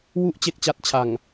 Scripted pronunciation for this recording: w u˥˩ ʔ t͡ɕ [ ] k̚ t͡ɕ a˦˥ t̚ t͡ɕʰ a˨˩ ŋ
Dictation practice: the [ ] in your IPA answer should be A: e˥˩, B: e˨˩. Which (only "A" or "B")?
A